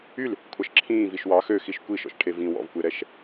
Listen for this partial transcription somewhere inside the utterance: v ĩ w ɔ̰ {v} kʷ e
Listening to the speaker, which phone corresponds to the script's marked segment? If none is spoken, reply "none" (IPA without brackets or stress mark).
v